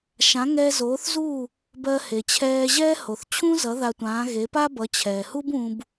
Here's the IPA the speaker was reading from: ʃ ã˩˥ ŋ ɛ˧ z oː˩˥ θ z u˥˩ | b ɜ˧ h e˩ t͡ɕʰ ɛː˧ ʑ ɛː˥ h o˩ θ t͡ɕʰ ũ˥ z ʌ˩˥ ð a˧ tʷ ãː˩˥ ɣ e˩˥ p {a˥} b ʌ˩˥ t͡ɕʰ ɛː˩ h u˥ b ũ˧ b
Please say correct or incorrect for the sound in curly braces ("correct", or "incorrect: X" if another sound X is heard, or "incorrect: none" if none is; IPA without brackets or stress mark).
correct